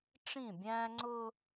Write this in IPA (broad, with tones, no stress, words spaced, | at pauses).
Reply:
ʈ͡ʂĩ˦˨bʲæ̃ː˦ ŋ͡ǀʊː˦